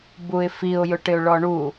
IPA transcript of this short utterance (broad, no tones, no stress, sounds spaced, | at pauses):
b u ɪ̯ f i ʊ̯ j ʊ ʈ ɪ ʊ̯ ɭ ɔ ɳ u